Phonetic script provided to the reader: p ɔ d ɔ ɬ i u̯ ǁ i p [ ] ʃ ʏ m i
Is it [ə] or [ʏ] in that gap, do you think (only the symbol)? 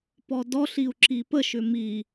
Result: ə